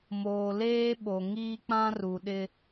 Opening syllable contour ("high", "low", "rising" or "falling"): low